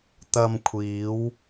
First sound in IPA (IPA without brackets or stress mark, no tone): t̪